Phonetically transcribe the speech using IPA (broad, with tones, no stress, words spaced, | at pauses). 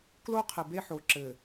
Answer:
klo˦ qʰɨ˨be˦ ħo˨ ǁɘː˨